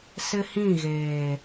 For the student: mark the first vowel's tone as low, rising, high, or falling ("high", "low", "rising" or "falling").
high